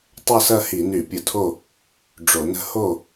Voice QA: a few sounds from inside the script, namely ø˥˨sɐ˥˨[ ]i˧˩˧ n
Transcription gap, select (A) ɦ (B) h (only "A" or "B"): B